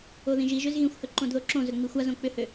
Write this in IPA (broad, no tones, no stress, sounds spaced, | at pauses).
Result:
o ð ĩ ʒ i ʒ ø z ɣ ĩ xʷ h ɵ ǃ õ d ð o ǁ õ z ɵ ŋ͡m i xʷ a z õ k͡p ʏ h ø